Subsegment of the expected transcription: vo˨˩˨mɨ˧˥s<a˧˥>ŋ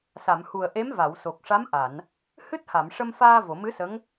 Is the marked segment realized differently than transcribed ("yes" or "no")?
yes